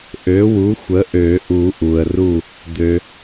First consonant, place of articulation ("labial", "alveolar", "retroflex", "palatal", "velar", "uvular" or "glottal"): glottal